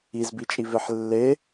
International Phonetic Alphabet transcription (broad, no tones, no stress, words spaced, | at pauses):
izbit͡ʃʼiveħ lːe